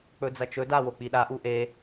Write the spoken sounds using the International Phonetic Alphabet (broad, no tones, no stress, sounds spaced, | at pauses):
k͡p ɵ d͡z ɐ t͡ʃ ɵ d a w o k͡p i ɗ a ʔ u ʔ e